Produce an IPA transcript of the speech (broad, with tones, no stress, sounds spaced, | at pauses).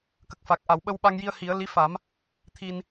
k ə˨˩ k̚ f a˨˩ k̚ ʔ a˨˩˨ w ɓ ə˧ w ɓ a˧ ŋ j i˧ ə̯ h i˨˩˦ ə̯ l i˧˥ f a˨˩˦ m | t̪ʰ i˧ n